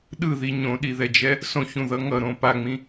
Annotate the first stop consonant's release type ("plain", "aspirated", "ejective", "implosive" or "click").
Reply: implosive